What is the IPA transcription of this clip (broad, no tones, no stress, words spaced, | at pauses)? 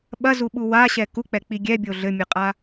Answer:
ɓɐzuɓu waɕɛ kuk͡pɛk͡pi ɡʲɛbʲo ɮɘmʲɨqʼa